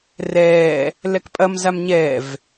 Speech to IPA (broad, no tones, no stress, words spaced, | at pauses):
rɛː | lɛkpʼɐmzam ɲɛv